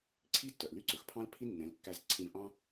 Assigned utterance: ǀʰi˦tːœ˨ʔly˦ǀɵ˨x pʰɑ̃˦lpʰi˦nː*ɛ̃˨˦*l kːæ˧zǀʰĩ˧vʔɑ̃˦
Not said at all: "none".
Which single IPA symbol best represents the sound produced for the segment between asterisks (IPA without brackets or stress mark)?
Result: ɛ̃˨˦